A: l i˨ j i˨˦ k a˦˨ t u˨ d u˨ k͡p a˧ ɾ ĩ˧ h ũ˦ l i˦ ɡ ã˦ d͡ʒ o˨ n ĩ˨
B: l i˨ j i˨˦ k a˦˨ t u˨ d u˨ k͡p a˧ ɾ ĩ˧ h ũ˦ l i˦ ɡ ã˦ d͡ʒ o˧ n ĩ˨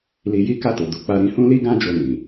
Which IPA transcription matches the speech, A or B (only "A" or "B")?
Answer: B